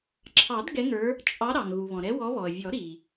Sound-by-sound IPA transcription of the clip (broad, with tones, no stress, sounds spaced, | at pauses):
ǁʰ ɑ˨˩˦ d ɡ ɛ˨˦ ŋ ə˞˨˦ | t͡ʃʼ ɑ˨˦ ɾ ɑ˩ ŋ ɣ u˩ β ɔ̃˩ ɾ ɛ˨˦ w ɔ˨˦ β ɔ˩ ə̯ vʲ ɔ˨˩˦ ɾ i˩